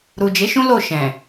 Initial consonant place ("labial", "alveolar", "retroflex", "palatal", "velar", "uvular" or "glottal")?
alveolar